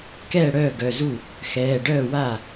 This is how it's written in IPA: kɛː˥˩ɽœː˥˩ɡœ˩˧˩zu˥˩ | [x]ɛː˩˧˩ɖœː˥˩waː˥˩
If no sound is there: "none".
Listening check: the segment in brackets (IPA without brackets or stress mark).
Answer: x